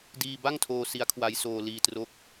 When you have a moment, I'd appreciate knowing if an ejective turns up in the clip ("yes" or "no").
no